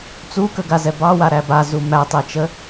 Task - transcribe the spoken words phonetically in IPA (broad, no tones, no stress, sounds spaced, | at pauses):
t͡s u k ə ɡ a z ɛ b ɑ w a ɾ æ b a z u m æ tˤ e t͡ʃ ə